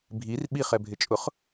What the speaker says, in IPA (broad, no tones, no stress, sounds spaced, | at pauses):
bʱ i r ɓ i χ ɛ bʱ ɪ t͡ʃʼ ʊ χ